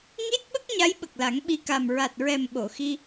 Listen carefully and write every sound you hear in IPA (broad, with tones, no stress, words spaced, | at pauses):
ŋi˦˥t̚ɓə˦˥k̚ ɲa˧˥jɓə˨˩k̚la˨˩˦ŋ ɓi˨˩ka˨˩m ɹa˨˩t̚ɹɛ˨˩m ɓo˨˩˨xi˧